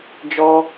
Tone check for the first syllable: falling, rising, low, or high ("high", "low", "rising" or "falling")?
high